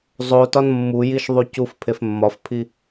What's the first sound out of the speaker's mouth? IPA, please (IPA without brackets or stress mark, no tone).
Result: zˤ